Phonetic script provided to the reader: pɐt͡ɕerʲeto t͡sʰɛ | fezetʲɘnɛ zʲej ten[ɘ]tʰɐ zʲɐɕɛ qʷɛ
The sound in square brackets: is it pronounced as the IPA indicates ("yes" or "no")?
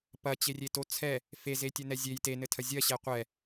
yes